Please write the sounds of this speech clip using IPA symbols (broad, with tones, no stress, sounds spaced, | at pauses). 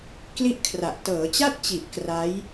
k l i˥˩ ʔ kʰ r a˨˩ ʔ t ɤː˩˦ t͡ɕ a˥˩ t̚ t͡ɕ i˨˩ ʔ k r a˦˥ j